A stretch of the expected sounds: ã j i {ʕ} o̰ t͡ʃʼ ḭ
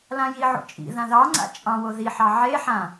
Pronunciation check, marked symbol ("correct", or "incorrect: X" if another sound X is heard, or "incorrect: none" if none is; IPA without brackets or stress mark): correct